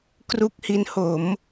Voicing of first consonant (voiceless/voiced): voiceless